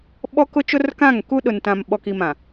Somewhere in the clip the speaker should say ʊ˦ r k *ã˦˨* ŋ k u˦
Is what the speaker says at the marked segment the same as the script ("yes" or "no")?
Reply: yes